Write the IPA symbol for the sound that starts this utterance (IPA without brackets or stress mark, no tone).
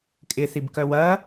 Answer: kʼ